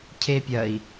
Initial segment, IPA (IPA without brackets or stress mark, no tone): cʰ